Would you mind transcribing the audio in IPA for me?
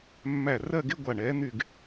mː æ˧˩ r ɜ˥˧ ɡ e˥˧ ɡʷ a˧˩ ɳ ɛː˨˦ n̪ y˥˧ ɡ

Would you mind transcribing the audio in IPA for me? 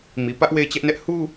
m i˨ p ä˦ ʔ w e˦˨ ɪ̯ t͡ɕ ɛ˦ ʔ n ɛ˦ ʔ h u˦

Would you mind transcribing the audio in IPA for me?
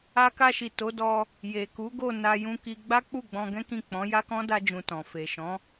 a˧ k a˧ ʃ i˨ t o˨˦ d ɔ˧ | j e˨ k u˨˦ ɡ o˦˨ n a˧ j ũ˧ k i˧ ɡ͡b a˦ k͡p u˦˨ ɡ͡b ɔ̃˧ ɡ ɛ̃˦ k ĩ˦˨ k͡p ɔ̃˨˦ j a˦ k ɔ̃˦ d a˧ d͡ʒ ũ˨ t ɔ̃˨ f e˨ ʃ ɔ̃˨˦

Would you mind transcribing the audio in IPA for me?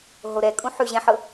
ɦ o ɾ ɛ kʼ ũ ħ ʉ ʑ ɛ̃ ħ ɤ

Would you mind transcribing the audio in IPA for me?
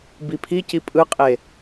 b i pʰ i c i pʼ ɯ qʼ e

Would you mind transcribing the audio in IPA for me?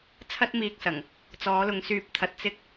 t͡sʰ ɐ˥ t̚ m iː˧ k̚ s ɐ˨˩ ŋ | t͡s ɔː˨˧ l ʊ˨˧ ŋ s yː˨ p̚ t̪ʰ ɐ˨ t̚ t͡s ɪ˧ k̚

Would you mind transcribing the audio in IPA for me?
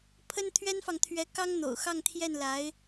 pʰ ə˥ n t̪ʰ ɥ ɛ˥ n f ɑ˨ ŋ t̪ʰ ɥ ɛ˧˥ k ɑ˥ ŋ n̪ o̰˨˩ ʊ̯ x ɑ˥˧ ŋ t̪ʰ j ɛ˥˩ n l a˧˥ ɪ̯

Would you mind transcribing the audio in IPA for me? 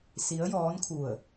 s i˧˥ ə̯ j ɔː˧˥ n kʰ u˧˩ ə̯

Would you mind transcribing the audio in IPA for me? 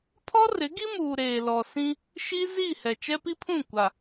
pʰ ɔ˦ r ɪ˨˦ ɡ i˦ m uː˨ ɾ eː˨ l ɔ˨ s ĩ˦ | ʃ i˦ z i˦˨ h ɛ˨ t͡ʃ ɛ˦ p i˦ pʰ ũ˦˨ kʷ a˨

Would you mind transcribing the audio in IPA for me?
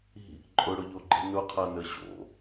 i̤ | ǃʼ ʊ ɽ ʊ ʎ o ɡ͡ǃ i̤ n ʊ qʰ a n ə ɕ o̰

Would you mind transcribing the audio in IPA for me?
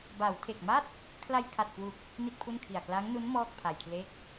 b a˩˦ w tʰ e˨˩ k̚ m a˥˩ t̚ | kʰ l a˧ j kʰ a˨˩ t̚ k w u˨˩ k̚ | n i˥˩ t̚ pʰ u˥˩ n kʰ i˨˩ a̯ k l a˦˥ ŋ n u˦˥ n m ɔː˥˩ k̚ pʰ a˧ j kʰ l e˥˩ k̚

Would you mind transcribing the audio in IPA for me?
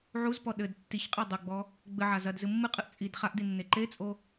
ʕ u z p ɔ ɗ ɘ d tː i ç qʼ ɛ dˤ ɘ ɡ͡b ɔ | ɡ͡b ɘ ʕ a z ɐ d z ɨ mː ɨ qʼ ɨ ʔ t͡sʼ i d χ a ʔ d i nː e ǃ e t͡sʼ o

